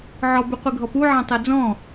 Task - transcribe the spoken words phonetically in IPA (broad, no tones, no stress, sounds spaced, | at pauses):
ʕ ɔ b y qʷ i ɡʱ ɔ p u ʕ ã tˤ ɛ d͡z ɔ̃